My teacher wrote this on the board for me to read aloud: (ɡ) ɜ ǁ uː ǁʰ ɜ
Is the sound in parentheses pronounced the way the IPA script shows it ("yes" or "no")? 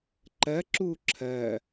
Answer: no